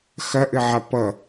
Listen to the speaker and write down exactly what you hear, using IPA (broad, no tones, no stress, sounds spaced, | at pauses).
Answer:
x ɐ ʔ ɘ ʕ a p ʌ